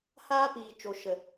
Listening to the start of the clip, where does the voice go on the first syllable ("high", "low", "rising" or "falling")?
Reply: high